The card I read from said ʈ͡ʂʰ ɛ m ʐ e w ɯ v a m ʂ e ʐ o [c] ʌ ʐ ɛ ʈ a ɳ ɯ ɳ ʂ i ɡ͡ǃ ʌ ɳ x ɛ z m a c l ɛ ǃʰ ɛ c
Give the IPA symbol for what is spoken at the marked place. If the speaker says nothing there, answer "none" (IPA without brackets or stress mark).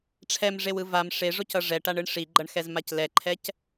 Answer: c